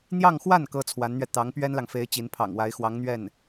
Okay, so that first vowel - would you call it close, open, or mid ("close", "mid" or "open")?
open